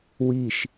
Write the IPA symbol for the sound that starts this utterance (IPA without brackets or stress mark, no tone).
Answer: w